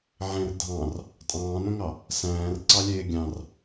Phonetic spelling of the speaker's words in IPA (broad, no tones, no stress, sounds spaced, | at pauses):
ʕ ẽ r dʱ ɑ̃ r | tʼ ɑ̃ː n õ ŋ ɑ | s æ̃ː r ǀ ɑ lʲ eː ɡʲ ɑ̃ r